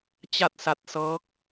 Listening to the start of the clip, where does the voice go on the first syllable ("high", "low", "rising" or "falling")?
falling